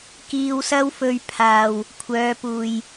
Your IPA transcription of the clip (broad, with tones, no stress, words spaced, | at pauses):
kiː˧wsɐ˥wfɵ˧ɥpʰaː˨w | kʷʰœː˨˧puː˨j